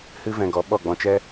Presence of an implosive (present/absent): present